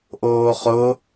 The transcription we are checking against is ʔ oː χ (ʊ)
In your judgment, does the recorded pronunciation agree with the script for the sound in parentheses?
yes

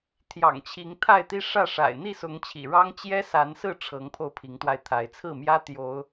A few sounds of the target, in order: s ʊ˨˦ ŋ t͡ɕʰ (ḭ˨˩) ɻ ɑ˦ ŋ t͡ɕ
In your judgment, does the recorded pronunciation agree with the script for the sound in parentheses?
yes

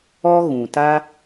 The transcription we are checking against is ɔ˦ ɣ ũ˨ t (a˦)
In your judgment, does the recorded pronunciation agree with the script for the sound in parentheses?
yes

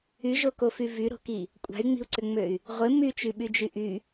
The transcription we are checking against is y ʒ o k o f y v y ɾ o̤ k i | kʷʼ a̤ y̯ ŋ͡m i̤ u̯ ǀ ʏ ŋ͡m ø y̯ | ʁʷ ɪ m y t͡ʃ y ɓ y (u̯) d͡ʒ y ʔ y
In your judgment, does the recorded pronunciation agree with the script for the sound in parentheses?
no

